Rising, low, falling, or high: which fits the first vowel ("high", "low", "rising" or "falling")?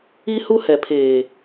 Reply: high